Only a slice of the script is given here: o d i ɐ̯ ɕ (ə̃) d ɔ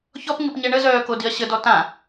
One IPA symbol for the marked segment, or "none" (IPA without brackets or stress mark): ə